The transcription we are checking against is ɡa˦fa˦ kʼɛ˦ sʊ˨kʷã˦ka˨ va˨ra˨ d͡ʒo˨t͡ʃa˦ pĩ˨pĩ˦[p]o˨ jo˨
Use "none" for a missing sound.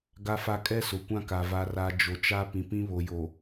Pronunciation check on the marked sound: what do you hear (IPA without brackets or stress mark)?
β